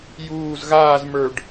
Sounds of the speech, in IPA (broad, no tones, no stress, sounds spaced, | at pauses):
j uː z ɣ aː z m ə˞ ɖ